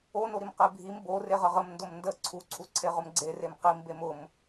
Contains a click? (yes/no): yes